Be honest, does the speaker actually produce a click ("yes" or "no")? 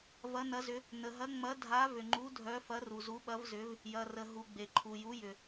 yes